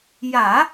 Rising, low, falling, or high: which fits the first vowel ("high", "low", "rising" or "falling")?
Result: low